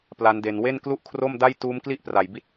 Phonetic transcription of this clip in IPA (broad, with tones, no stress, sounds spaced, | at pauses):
p l a˦˥ n d e˧ n w e˥˩ n k l u˥˩ ʔ kʰ r o˥˩ m d a˥˩ j t uː˦˥ m k l i˥˩ ʔ p r a˨˩ j b i˦˥ t̚